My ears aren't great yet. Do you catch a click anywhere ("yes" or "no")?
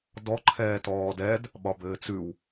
yes